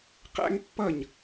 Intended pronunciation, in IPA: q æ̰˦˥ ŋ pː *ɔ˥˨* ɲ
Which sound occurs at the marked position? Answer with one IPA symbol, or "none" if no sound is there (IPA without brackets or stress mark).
ʌ˥˨